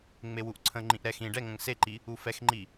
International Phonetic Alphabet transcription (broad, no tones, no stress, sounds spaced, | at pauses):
ŋ͡m e w u ʔ ǀʰ ə̃ ŋ͡ǃ ĩ ʔ ɾ ɛ x ĩ ɖ ɛ ŋ ə̃ ŋ s e ǃ i | u f ɛ x ŋ͡ǃ i